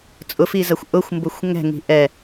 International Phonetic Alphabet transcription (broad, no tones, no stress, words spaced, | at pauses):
t͡sʼʊfizɐxʷ ʔʊxʷmbʊxʷ ŋɛ̤ŋi̤ ʔɛ